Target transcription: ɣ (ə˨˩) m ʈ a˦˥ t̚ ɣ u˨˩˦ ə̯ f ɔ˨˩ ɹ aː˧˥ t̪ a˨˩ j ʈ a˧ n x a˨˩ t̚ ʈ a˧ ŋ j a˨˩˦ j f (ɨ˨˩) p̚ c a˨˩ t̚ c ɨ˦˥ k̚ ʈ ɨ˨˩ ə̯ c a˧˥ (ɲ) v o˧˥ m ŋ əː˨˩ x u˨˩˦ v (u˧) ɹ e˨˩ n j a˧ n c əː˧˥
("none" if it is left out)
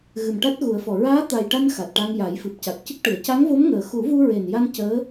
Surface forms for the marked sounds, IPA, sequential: ɨ˨˩, ɨ˨˩, ŋ, u˧

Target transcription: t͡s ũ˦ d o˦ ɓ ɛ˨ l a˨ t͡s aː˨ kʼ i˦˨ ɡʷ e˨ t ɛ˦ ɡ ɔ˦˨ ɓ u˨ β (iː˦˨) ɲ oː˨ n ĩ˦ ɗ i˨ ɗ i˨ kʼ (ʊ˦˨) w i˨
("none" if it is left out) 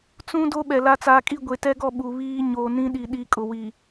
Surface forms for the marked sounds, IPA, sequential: iː˦, ʊ˨

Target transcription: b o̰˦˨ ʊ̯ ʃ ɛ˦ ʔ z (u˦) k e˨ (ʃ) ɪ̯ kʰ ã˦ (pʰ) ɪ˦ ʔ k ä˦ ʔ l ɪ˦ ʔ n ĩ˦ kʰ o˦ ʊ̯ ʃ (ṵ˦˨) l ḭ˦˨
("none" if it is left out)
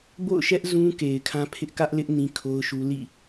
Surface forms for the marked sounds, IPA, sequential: ũ˦, none, pʰ, u˦

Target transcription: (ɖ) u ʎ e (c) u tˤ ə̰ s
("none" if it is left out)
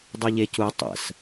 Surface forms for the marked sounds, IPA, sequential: dˤ, c

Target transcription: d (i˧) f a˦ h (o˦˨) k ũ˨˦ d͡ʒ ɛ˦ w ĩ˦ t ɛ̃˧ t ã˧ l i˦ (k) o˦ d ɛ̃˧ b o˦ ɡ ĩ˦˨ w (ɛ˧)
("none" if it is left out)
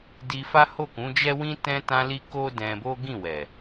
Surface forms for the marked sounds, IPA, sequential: i˧, o˦˨, k, ɛ˨

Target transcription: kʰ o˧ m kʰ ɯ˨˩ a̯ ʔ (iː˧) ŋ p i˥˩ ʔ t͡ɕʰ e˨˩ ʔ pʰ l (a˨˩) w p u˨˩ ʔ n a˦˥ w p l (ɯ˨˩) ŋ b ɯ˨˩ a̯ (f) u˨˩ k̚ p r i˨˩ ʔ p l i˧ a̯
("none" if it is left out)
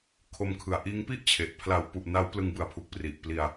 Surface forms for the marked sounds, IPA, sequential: iː˦˥, a˨˩, ɯ˧, pʰ

